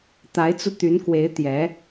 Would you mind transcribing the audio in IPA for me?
t̪ a˧˥ ɪ̯ t͡s u˧ t̪ y˧˥ n k w e˧˥ ɪ̯ t̪ j ɛ˧˥

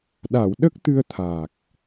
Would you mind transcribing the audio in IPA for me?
ɗ a˨˩˨ w ɗ ə˦˥ k̚ t̪ ɨ˧ ə̯ t̪ʰ aː˨˩ k̚

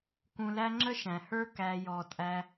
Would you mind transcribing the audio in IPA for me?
k ũ˧ l æ˦ ŋ͡ǁ ə˦ ʃ æ̃˨ h ə˞˦ k æ˦ j ɔ˧ tʼ æ˦

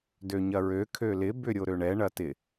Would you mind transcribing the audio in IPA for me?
d ø ɲ ɐ ɹ ø kʰ ø l ɪ b ʏ ɾʲ o ɾ ø ɳ ɛ ɳ ɐ t ɪ

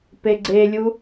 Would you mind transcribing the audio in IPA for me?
p e ɡ͡ǀ e lʲ u

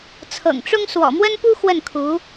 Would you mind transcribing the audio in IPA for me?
t͡sʰ ɤ̰˨˩ ŋ ʈ͡ʂ ʊ˥ ŋ s w ɔ̰˨˩ m w ə˥ n p u˥ x w ə˥˩ n kʰ u˧˥

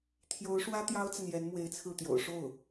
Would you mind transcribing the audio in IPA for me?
t̪ʰ j o˧˥ ʊ̯ ʂ w ä˥ t̪ j ɑ˥ ʊ̯ t͡s a˨ n j ɛ˧˥ n m w e˧˥ ɪ̯ t͡sʰ ɹ̩˥˩ t̪ j o̰˨˩ ʊ̯ ʂ o˥˩ ʊ̯

